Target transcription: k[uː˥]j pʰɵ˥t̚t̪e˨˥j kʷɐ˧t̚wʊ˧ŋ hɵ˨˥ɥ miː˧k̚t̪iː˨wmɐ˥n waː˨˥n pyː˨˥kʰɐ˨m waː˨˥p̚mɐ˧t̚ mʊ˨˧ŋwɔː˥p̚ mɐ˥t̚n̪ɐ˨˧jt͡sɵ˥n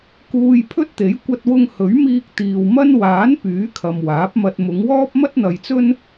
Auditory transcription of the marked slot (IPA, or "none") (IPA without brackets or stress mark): uː˧